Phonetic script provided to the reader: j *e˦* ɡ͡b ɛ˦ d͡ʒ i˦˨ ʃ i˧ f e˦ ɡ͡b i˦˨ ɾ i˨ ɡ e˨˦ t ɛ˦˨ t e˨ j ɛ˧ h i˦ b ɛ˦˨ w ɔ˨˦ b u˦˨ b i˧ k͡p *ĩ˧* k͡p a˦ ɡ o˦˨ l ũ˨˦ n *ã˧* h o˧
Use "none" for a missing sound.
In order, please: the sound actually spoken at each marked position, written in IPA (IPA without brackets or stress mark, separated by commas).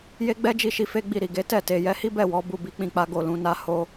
e˦, ĩ˧, a˧